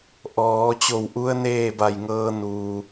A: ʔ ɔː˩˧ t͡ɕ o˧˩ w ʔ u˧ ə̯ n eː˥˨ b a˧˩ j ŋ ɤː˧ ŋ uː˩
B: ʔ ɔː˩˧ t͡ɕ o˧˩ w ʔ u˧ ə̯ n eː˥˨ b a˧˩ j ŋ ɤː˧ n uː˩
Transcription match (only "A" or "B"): B